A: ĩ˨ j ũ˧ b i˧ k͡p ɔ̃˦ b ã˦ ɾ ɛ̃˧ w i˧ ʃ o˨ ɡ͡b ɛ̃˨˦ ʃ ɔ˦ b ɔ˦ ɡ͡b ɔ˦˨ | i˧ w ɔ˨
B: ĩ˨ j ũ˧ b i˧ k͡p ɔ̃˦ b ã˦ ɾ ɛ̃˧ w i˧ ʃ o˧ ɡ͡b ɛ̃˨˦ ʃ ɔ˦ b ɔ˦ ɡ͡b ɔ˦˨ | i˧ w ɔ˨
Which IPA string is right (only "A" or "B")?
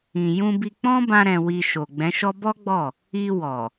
A